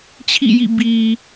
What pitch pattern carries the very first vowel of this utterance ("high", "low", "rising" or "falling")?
falling